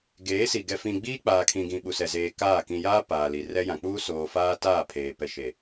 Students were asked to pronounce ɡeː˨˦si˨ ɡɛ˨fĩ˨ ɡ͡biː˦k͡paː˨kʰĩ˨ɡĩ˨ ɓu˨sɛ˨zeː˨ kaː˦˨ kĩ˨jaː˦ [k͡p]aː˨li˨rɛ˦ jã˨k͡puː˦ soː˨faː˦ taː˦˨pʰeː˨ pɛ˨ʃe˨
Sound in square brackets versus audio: incorrect: p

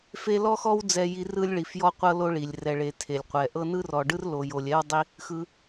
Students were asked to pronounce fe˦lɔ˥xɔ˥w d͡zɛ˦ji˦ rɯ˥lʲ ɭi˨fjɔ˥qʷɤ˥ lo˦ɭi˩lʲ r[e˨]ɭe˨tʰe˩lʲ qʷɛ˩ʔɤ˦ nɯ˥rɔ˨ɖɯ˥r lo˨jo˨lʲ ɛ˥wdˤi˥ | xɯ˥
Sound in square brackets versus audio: incorrect: ɛ˨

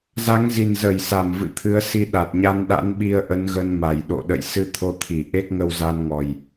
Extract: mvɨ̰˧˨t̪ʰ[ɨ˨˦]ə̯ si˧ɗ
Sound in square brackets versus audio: correct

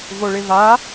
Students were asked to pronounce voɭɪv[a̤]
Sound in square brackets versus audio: incorrect: a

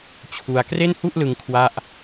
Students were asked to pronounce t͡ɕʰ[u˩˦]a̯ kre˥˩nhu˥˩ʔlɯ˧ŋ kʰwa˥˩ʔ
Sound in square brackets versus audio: incorrect: u˧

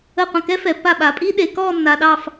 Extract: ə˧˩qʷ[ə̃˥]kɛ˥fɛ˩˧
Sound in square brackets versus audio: incorrect: ə̃˧˩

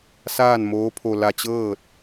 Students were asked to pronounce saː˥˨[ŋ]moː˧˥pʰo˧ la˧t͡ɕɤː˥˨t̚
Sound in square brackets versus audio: incorrect: n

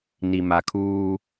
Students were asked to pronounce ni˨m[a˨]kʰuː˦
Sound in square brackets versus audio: correct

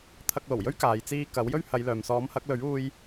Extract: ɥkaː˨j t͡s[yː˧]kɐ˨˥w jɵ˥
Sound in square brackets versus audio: incorrect: iː˧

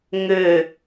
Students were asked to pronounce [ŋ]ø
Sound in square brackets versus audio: correct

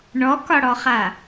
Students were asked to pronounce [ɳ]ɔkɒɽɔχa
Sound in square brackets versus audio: correct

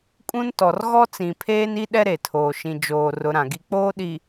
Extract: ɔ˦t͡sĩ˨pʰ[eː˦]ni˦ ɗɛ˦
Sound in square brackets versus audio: correct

